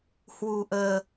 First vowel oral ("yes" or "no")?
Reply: yes